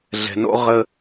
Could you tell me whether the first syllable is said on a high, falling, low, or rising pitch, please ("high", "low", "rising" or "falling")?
low